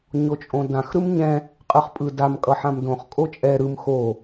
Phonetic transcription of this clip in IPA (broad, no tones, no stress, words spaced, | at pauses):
ɲot͡ʃʼõdãx ɾɯmɲɛ̃ | qʼɯχpʼɯdam kʼʌħãmdõχ kʼot͡ʃʼɛ ɾɯm xo